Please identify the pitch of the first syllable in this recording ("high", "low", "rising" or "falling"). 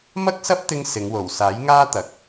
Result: high